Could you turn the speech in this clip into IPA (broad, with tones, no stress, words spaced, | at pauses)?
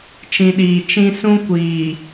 t͡ʃĩ˨ɗiː˨ t͡ʃĩ˦ sũ˦kʷiː˨